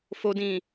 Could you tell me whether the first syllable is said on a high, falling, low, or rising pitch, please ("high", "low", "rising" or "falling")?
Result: low